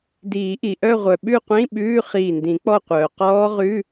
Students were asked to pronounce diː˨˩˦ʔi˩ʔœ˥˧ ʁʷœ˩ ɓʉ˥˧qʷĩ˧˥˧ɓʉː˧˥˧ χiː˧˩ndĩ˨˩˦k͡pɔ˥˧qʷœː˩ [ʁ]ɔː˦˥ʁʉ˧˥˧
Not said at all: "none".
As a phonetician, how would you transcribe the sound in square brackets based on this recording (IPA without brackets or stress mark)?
q